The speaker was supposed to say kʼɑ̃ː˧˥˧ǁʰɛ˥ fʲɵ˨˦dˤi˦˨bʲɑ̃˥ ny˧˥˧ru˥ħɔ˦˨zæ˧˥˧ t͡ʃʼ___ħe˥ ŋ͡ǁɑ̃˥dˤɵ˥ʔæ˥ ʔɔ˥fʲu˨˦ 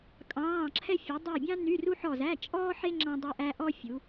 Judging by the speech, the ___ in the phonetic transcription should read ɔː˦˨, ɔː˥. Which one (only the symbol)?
ɔː˥